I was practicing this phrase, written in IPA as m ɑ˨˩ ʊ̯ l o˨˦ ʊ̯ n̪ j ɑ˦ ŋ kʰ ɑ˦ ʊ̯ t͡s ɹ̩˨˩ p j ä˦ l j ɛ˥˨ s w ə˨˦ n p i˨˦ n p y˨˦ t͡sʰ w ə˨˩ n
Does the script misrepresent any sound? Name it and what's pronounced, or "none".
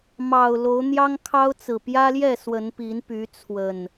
none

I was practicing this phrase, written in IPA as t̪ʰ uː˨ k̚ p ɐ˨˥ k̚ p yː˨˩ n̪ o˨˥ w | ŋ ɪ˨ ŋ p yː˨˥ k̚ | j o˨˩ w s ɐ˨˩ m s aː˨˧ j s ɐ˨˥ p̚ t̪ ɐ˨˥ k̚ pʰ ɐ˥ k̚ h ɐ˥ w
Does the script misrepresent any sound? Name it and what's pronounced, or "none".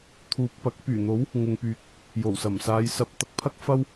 h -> f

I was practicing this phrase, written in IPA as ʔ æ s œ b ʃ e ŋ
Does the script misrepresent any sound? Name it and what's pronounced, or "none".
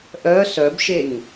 æ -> œ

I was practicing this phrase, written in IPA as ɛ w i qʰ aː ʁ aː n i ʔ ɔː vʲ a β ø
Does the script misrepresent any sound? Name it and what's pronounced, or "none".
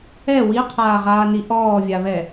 ø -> ɛ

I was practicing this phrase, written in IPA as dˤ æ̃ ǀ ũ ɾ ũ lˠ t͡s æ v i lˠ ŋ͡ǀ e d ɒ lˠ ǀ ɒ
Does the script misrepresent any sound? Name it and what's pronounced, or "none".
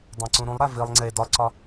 t͡s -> ɾ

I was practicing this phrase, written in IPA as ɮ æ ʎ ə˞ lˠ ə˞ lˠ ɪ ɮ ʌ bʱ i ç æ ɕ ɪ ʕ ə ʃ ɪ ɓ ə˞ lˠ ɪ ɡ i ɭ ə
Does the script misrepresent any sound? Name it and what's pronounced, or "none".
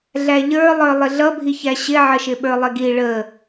none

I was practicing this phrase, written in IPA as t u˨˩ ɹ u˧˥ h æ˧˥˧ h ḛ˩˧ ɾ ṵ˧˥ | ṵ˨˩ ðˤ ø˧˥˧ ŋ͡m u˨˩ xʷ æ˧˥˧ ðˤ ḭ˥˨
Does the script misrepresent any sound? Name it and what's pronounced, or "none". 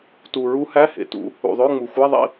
ɾ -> t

